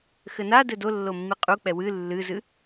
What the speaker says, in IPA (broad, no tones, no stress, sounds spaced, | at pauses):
x ɘ n a d ɘ d o lː o mː i qʼ u k͡p ɛ w ɨ lː ɨ z ɨ